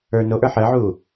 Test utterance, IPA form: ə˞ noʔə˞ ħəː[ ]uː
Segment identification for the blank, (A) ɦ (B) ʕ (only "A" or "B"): B